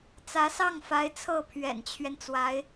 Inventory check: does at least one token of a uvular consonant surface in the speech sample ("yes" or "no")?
no